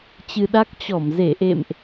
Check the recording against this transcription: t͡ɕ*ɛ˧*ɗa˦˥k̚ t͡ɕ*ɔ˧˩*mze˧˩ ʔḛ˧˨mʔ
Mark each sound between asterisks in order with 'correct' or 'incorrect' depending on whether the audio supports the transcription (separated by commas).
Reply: incorrect, correct